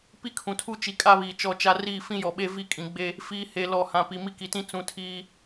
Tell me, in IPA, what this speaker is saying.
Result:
p i˦ kʰ ũ˨ tʰ u˦ t͡ʃ i˨ kʼ a˦ β iː˨ t͡ʃ ɔ˦˨ t͡ʃ a˦ r iː˦˨ f ĩ˦ j ɔ˨ ɓ e˦ v i˦˨ kʼ ĩ˨ ɡ͡b e˦ | f iː˨ h e˨ l ɔ˨ h ã˨ p i˨ m i˦ k i˨ t ĩ˦ t͡s ũ˨ tʰ iː˦

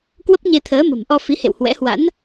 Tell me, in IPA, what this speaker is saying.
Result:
k w ə˦˥ p̚ ɲ e˧ t̪ʰ əː˨˦ m ə̤˨˩ m ʔ ɔ˧ f i˨˦ h ḛ˧˨ w h w ɛ̰˧˥ h w a̰˧˥ n

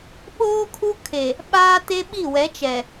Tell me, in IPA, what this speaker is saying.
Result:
ɓ oː˦ kʰ u˦ kʰ e˨ | ɓ aː˦ t e˦ ɓ i˦˨ w ɛ˨˦ t͡ʃ ɛ˨

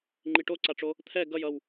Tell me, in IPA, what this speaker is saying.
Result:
ŋ͡ǃ i ʈ o ǀ a ʈ͡ʂ o | t̪ʰ ɛ ɡ ʌ j ʌ w

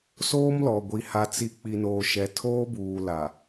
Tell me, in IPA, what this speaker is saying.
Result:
s oː˦ m l ɔ˨ ɡʷ i˨ h a˨ t͡s i˨ k͡p i˨ n oː˨ ʃ ɛ˨ tʰ oː˦ b uː˨ l a˨

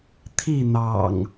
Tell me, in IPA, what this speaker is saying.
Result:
t̪ʰ i˥˨ n̪ ɑ̰˨˩ ŋ

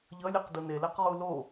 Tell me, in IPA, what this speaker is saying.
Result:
ʎ ʌ lʲ e q d u n e l ɛ q ʁ u l o

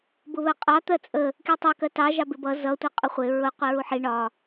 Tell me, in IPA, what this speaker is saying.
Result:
b ʊ β ɜ qʼ ɑ t̪ ɜ t͡sʼ ə | k i tˤ ɜ k ɜ t ɑ ʒ ɑ b ɪ b ʌ z ʌ tʷ ʌ qʼ ʊ χʷ ɪ ɹ ʊ qʷ i ɹ u ħ i ɳ ɒ

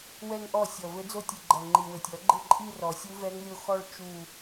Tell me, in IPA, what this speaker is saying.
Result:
w ɛ˥˧ ŋ ʔ ɔ˥˩ sʲ ɔ˨˩ v ɘ˧˥ d͡z o˥˧ tʲ ɨ˨˩ ɡ͡ǃ ɐ˨˩ ŋ͡ǃ i˨˩ w ɘ˨˩ tʲ ɔ˨˩˦ ɡ͡ǃ ɘ˥˩ ǃʼ i˥˧ r ɔ˨˩ sʲ u˧˥ v ɛ˧˥ ŋ lʲ o˥˩ x ɔ˥˧ ɭ t͡ʃ u˥˧

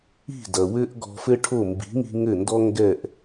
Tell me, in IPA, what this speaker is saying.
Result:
i̤˥˩ d ɐ˩ w ɘ˥ ʔ ɡ ɔ̤˧ f ɘ˥ ʈʰ o˥˩ m b i̤˩˥ ŋ i̤˧ ŋ ɘ˥˩ n d ɔ˥ ŋ ɡ ɛ˥˩ ʔ

